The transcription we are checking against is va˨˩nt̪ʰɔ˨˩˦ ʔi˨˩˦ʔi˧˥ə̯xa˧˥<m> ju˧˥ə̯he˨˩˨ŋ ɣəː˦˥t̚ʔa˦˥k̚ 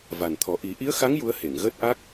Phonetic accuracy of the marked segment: incorrect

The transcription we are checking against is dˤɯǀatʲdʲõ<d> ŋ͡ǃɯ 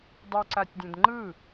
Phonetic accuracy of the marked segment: correct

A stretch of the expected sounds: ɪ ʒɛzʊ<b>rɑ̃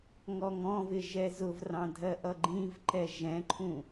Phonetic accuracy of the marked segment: incorrect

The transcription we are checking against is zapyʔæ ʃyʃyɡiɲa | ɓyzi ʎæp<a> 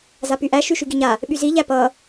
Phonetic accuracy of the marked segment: incorrect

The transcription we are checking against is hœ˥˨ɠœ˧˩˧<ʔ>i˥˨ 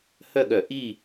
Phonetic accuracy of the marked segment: correct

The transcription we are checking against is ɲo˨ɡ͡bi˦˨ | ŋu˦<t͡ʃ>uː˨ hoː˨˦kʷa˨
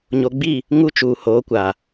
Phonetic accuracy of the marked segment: correct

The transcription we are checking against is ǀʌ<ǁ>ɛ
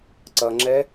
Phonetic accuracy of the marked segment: incorrect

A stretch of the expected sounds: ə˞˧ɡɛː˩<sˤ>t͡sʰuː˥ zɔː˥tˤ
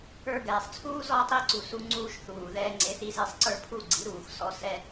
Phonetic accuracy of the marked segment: correct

